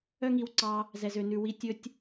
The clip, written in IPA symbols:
œ˦ ŋ i˧ w ǀ ɑ˧ | z ɛ˨ z ø˨ n ʉ˨ w i˨ tʲ ɵ˦ tʲ

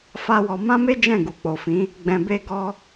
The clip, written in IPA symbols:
f a˦ w ɔ˧ m ã˦ m e˦ d͡ʒ ɛ̃˦˨ ɡ u˨ k͡p o˨ f ĩ˨˦ | ɡ͡b ɛ̃˧ b e˦ ɡ ɔ˦

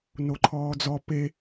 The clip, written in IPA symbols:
n o ǃʰ ɔː d͡z ɔ p e

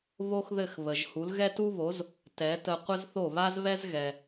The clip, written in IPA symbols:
β o˥ x ð ɘ˥˩ x β ə˩ ʒ h u˩˥ l ɣ ɛ˥ t u˥ β o˩˥ z | t ɛ˩˥ t ə˧ qʷ ə˥ z θ o˥˩ β a˥ z β ɛ˥ z ɣ ɛ˩

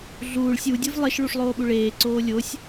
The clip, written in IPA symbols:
ɮ uː ɭ sʲ u dʲ ɨ v lˠ e ʃ ɭ u ʂ lˠ oː ɓ u ɭ eː ǀ oː lʲ o sʲ

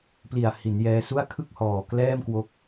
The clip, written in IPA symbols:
p l i˨˩ a̯ h i˩˦ n j ɛː˧ s u˥˩ a̯ kʰ ɯ˥˩ k̚ h ɔː˨˩ k l ɛː˥˩ m k w o˦˥ k̚

